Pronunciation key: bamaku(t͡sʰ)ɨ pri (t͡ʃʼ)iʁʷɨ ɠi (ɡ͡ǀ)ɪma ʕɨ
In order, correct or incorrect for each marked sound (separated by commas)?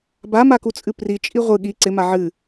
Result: incorrect, correct, incorrect